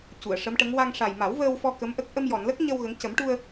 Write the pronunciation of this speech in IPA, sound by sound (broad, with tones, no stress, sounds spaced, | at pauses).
c u˨˩˨ ə̯ ʂ ə˧˥ m ʈ ə˧˥ ŋ w a˧ ŋ ʂ a˨˩ j m a˨˩˦ w v əː˧ w f ɔ˧ k ə˧˥ m ʔ ə˦˥ k̚ ʔ ə˧ m j ɔ˨˩˨ n l ə˦˥ k̚ ɲ ə˧ w ɣ ə˧˥ ŋ c ə˨˩˦ m ʈ u˧ ə̯